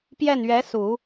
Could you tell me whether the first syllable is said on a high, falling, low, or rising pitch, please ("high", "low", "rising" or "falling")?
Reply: falling